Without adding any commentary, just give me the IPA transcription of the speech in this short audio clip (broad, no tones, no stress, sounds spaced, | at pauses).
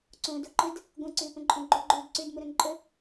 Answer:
ǀ õ d o ǃ ə d | ɡʷ ə̃ ǀ ʏː p ə̃ ǃʼ õ ɡ͡ǃ o ɡ͡ǃ ʏː d ǀ ʏ d m ʊ ɾ õ n ǃʼ ə